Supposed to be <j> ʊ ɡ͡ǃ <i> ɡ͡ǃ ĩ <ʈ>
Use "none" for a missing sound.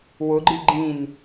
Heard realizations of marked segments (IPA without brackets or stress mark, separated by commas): w, i, n